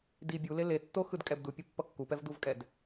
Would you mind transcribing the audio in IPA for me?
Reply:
d i bʲ u l e l e tː o x ɯ d kʼ ɛ b d u pʲ o pː ʌ kː u p ɛ v d u v kʼ ɛ d

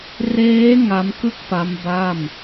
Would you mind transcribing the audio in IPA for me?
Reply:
r eː˦˥ ŋ a˦˥ m k ɯ˥˩ k̚ p a˦˥ m b a˥˩ m

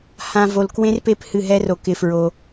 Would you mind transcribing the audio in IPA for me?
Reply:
h ã˧ v o˧ l k w ẽ˦ r p e˦ p h ɨ˦˨ ɦ ɛ˦ r o˧ k ɪ˧ f ɹ o˧

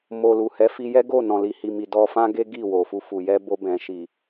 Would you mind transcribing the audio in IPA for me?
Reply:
m o˨ l u˨ h ɛ˨˦ f i˧ j ɛ˦ ɡ o˦˨ n ɔ̃˨ l i˨ h i˨ m i˨ d ɔ˧ f ã˦ ɡ e˦ ɡ i˦˨ w o˨ f u˧ f u˨ j ɛ˧ b o˧ b ɛ̃˨ ʃ i˨

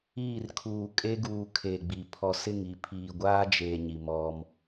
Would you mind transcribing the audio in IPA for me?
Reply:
iː˦˨ r kʰ uː˨ kʼ e˦ ɡ uː˨ kʰ e˨ ɡ͡b i˨ pʰ ɔ˨ s ɪ˦˨ ŋ i˨ pʰ iː˨ ɡʷ aː˦ d͡ʒ eː˨ ɲ i˨ m ɔ˦ m

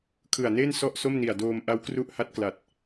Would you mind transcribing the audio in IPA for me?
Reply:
kʰ ɯ˨˩ a̯ n eː˥˩ n s ɔ˥˩ ʔ s o˥˩ m n i˨˩ a̯ d oː˧ m ʔ a˦˥ w k r u˦˥ ʔ h a˦˥ t̚ k l a˨˩ t̚

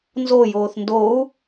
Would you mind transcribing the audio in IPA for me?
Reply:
n z o j oː θ n d o u̯

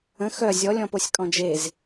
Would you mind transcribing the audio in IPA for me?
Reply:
ə̃ x œ zʲ ɔ lʲ ɔ̃ p o sʲ kʼ ɔ̃ d͡ʒ e z

